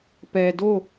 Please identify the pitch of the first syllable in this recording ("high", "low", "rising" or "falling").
low